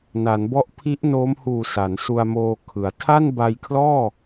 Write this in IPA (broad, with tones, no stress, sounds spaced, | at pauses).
n a˩˦ n b ɔ˦˥ ʔ pʰ i˦˥ ʔ n oː˦˥ m h uː˨˩ s a˩˦ n s u˧ a̯ m oː˧ kʰ ɯ˩˦ a̯ tʰ a˥˩ n b a˧ j kʰ l ɔː˥˩